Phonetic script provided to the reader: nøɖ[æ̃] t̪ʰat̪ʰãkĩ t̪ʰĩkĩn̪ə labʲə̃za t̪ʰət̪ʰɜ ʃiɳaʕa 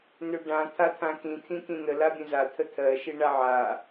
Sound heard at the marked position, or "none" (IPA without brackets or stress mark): ã